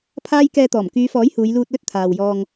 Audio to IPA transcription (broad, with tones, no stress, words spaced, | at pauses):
pʰaː˥j kɛː˧t̪ɔː˨˩m kyː˨˧fɔː˨˥j huː˨˧jluː˧t̚lɵ˥t̚ t̪ʰaː˨w jɔː˧ŋ